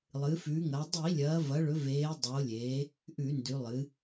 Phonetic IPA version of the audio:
lˠɨ˩˧fʉ˩˧ŋɐ˩˧ dˤi˧˩˧lʲɐː˩˧vɐ˩˧ɭɵ˩˧ veː˩˧ dˤoː˩˧lʲeː˩˧ | ʔʉ˧˩˧ndʉ˩˧lˠɨ˩˧

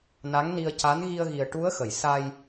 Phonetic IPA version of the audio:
na˧˥ŋni˧ə̯ca˧˥n ɣi˧ə̯ɣi˨˩ə̯ʈu˧˥ə̯xə˨˩˨j sa˧j

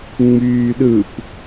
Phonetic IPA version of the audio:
ŋ͡myːɗɯp

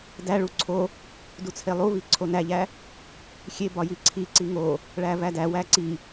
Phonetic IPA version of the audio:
dæɭu ǀʰo | dut͡sʰelˠuvi ǀʰonæʎæ | xʲebɒ jiǀʰiǀi ŋo | ɭævædæwæ ǀi

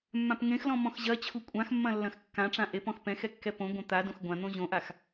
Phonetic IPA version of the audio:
mːãpŋẽxlɔ̃ mɔ̃xʑɐt͡ɕʰu kʷʼãxmːɐ̃ lːɐ̃xkːãʈ͡ʂã ʔepɔ̃x pɛ̃x ɛkːɛpõɡʷɐ̃ t̪a dõxɡʷãn̪õ ʑõʔax

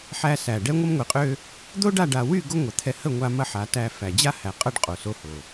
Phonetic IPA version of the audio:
ħæ˧sæ˨ɖɛ˦ ŋʷə˦mŋʷi˨qʼø˦ | d̪o˦ɖa˦˨ɖa˨wy˦˨ ɡo˦ŋʷɐ˨t̪ʰɛ˧ hə˦˨ŋʷa˧ mɐ˦ħa˨˦tæ˧ fæ˨d͡ʑa˦hæ˨ qʼɐ˦ɖqʼo˨so˧ho˨

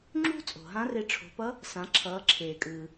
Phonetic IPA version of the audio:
ŋ͡ǁṳ˥ t͡sʼo̤˩ɦã˧˥re˧ ʈ͡ʂʰo̤˩˧pʌ˧˥ | sã˩˧ǁʰʌː˩˧ ǁʰeː˩kʼɯː˩

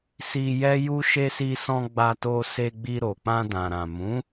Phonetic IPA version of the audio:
si˧ jɛ˦ju˦ ʃe˧si˧sɔ̃˧ ɡ͡ba˧to˧se˧ɡ͡bi˧ ɾo˨k͡pã˧ dã˨ɾã˨mũ˨˦

